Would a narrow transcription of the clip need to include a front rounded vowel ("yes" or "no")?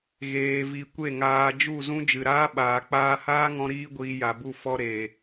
no